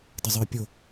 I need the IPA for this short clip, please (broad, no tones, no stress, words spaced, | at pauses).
dəzˤə˞pʲo